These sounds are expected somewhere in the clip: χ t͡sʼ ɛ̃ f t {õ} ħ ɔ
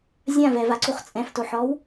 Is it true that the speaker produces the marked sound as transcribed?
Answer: no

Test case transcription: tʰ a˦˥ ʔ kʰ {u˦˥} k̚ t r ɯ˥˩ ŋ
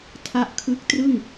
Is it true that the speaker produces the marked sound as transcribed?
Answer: no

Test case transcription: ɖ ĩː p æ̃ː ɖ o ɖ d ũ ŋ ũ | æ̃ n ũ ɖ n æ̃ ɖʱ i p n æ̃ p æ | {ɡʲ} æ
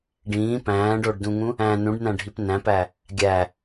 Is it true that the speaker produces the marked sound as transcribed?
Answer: yes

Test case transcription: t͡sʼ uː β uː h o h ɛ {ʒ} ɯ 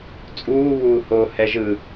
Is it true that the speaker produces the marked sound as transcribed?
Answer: yes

